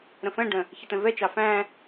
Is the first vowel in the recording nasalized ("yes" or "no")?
yes